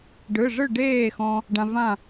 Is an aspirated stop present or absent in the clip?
absent